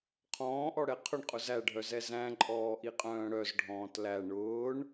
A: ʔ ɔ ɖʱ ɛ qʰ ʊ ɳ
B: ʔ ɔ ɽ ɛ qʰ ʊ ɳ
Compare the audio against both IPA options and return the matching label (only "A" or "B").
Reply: B